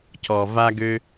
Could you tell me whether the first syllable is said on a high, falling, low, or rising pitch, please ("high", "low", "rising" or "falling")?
low